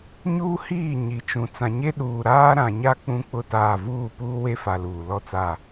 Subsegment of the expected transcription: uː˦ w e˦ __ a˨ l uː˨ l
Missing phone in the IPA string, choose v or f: f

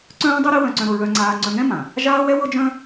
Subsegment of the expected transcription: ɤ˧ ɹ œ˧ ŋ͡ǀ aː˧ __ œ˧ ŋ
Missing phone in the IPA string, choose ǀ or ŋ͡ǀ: ŋ͡ǀ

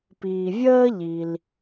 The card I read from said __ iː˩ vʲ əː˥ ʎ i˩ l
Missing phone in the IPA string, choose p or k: p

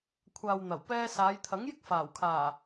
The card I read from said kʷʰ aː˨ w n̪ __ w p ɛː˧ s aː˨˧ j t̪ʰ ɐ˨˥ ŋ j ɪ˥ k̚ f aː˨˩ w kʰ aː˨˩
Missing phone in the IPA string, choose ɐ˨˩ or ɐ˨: ɐ˨˩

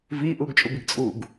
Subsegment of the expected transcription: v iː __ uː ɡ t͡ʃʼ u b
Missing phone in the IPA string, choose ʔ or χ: ʔ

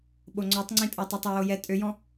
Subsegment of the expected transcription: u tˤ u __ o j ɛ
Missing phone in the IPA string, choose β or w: w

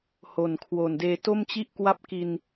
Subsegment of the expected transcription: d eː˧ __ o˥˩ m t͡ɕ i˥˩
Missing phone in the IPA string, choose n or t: t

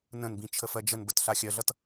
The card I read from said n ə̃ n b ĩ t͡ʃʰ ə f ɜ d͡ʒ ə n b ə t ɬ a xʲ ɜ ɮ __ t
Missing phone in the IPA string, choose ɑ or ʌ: ʌ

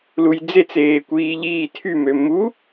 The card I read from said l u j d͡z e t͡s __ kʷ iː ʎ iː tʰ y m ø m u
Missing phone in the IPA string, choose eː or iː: eː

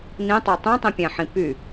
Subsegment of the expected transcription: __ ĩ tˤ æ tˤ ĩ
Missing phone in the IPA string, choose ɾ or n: n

